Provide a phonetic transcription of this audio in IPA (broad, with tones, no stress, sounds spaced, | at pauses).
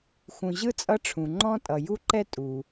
x ũ˨ ʑ ɯ˥ t͡sʼ ʌ˦ ʈ͡ʂʰ ũ˩ ŋ͡ǃ ɔ̃˥ tʼ ʌ˩ j u˦ ǃ ɛ˦ tʼ u˩